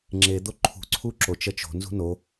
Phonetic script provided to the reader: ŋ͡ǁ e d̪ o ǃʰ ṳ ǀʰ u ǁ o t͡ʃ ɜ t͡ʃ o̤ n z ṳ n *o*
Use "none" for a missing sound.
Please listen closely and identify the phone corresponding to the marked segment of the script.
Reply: o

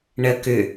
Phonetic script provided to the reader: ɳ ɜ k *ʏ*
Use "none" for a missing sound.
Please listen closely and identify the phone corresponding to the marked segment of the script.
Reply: ʏ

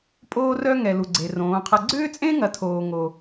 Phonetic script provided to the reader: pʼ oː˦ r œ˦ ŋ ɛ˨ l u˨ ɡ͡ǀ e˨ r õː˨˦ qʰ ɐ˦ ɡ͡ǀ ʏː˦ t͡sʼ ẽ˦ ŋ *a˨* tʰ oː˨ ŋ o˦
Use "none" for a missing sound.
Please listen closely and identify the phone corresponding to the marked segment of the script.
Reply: ɐ˨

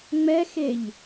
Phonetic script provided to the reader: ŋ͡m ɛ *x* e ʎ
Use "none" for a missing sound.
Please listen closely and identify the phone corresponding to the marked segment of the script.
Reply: x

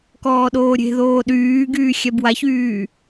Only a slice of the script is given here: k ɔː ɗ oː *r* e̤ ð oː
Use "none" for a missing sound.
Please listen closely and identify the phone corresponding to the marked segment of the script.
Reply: ɾʲ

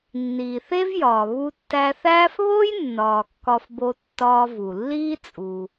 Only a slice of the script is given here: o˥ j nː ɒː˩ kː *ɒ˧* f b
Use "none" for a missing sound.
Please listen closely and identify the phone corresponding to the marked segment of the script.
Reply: ɒ˧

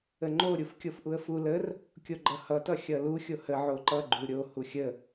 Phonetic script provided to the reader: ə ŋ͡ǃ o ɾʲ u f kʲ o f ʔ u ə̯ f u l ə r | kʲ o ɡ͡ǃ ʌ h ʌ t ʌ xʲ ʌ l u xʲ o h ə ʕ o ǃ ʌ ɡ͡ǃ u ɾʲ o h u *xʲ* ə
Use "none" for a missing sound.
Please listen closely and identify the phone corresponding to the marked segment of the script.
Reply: xʲ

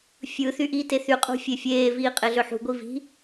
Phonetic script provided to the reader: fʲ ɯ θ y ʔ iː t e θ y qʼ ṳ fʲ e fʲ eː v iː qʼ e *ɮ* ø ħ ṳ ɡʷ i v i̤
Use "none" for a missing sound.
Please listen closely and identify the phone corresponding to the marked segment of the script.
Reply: ɮ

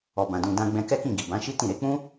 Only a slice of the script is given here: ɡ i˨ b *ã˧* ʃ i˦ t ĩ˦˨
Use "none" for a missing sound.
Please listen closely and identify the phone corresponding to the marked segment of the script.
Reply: ã˨˦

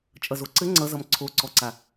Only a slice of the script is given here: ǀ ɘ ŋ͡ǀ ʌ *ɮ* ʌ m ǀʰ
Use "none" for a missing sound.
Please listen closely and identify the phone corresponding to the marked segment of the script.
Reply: z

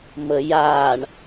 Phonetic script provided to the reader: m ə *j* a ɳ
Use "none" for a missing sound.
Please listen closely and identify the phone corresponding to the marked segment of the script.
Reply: j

